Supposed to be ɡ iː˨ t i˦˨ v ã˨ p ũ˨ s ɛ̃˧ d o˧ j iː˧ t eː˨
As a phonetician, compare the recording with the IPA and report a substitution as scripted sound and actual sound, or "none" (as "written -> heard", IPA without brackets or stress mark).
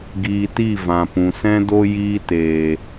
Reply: none